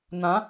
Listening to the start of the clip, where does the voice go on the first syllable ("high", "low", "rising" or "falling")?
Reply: rising